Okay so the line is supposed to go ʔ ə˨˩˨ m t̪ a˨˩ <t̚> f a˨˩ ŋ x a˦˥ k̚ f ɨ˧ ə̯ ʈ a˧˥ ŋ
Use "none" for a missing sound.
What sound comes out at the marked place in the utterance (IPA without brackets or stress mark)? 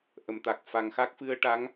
k̚